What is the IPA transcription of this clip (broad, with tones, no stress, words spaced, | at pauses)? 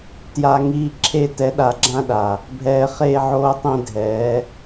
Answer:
tja˨ ŋiː˧ǁʰe˧ tɛ˨˦ɗa˨ɡ͡ǁã˧ɗa˨ | bʱɛː˨χeː˧ʕoː˧ tˤẽ˧dʱɛː˨˦